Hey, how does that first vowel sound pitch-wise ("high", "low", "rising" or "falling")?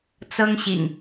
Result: high